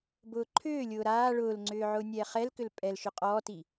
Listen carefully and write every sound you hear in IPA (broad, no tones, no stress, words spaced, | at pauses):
bʊːǃʰʏːlʲʊː ɾaː ɭʊːlŋ͡ǀʏː ʕʊːnʲɛːχɛlkʏl pʼɛlʃʏ qʼɔːti